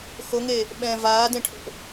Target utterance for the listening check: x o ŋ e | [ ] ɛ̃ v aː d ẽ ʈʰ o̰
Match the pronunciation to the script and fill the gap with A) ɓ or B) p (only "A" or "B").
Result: A